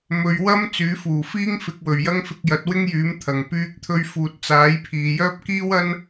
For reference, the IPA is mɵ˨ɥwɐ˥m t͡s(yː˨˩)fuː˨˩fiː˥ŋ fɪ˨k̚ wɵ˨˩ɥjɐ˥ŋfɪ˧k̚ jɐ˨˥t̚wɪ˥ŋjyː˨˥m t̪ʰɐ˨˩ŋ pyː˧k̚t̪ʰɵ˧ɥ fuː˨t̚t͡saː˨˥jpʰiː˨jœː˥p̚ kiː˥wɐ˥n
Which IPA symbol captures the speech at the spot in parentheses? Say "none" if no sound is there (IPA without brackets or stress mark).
yː˨˥